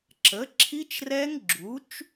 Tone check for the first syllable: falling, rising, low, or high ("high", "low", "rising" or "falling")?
rising